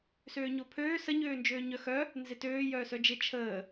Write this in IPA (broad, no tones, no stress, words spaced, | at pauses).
søːɲopʰøː sə ɲøːnd͡ʒøːɲœxœ | nzɪtøː jœːsœd͡ʒɪ t͡ʃʰəː